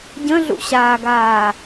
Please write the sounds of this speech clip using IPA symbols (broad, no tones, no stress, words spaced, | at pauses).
ɟə̃ɮṵɕaːɡaː